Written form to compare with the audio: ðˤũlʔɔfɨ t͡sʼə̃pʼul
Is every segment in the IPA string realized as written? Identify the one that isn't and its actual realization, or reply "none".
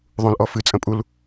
none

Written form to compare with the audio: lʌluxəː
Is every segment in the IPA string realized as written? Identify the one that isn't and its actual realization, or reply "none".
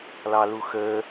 ʌ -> ɑ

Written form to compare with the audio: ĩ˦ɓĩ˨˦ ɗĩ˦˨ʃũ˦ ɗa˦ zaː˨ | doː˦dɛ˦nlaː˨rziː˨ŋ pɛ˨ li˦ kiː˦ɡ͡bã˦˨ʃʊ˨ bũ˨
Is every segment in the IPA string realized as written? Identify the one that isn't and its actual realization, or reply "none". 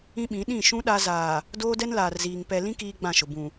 i˦ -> ĩ˦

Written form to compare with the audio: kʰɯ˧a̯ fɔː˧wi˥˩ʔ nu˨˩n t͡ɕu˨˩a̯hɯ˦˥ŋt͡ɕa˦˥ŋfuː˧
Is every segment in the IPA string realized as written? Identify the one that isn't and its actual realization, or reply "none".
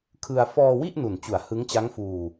none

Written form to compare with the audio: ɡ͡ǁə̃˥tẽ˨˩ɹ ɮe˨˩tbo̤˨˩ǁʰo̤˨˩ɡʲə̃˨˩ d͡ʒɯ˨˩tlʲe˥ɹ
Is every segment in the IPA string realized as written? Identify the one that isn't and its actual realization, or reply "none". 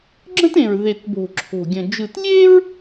ɮ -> ð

